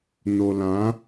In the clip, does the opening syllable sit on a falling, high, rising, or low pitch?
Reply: low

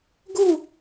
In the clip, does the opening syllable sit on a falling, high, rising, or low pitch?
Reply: falling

